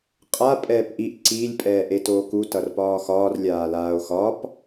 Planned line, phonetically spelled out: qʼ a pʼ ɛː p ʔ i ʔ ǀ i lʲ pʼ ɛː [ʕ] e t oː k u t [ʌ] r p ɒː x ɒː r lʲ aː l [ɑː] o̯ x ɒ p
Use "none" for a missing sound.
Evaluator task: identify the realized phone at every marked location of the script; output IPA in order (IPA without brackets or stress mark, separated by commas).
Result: ʔ, ʌ, aː